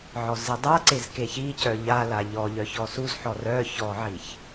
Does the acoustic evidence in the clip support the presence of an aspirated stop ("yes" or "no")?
no